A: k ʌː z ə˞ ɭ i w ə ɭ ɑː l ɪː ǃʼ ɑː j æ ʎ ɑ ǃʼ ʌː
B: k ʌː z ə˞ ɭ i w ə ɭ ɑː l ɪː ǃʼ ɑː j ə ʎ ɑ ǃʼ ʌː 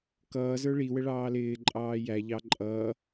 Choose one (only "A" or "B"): A